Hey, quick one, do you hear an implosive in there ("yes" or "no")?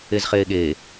yes